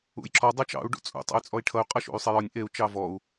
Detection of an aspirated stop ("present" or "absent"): present